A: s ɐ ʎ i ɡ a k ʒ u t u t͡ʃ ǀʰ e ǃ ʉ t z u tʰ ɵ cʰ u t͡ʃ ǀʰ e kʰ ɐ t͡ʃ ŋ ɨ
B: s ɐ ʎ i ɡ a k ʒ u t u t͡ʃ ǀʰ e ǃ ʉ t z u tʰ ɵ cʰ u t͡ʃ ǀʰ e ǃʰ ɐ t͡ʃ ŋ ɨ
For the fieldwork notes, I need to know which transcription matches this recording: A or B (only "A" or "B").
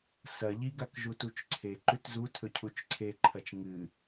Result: B